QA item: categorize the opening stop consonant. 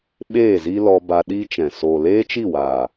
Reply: implosive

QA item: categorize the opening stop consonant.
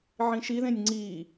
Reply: click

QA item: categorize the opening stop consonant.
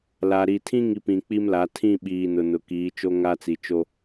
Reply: aspirated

